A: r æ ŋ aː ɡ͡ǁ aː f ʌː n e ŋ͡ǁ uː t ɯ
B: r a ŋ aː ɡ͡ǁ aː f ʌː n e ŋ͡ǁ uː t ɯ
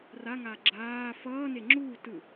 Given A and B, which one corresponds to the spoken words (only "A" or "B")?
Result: B